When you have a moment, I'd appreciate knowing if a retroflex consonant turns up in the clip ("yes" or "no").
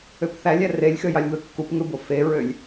no